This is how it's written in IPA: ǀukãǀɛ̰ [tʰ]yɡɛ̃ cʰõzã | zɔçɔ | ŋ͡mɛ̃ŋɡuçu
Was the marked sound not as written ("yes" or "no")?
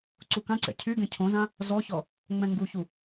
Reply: yes